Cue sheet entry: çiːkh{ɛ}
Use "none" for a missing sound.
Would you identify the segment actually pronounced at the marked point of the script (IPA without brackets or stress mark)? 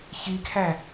æ